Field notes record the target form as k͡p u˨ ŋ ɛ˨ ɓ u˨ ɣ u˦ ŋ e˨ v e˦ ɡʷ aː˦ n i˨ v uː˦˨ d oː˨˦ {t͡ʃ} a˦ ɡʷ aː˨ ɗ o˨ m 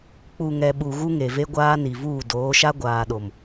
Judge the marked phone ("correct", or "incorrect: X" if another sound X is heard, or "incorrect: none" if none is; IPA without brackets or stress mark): incorrect: ʃ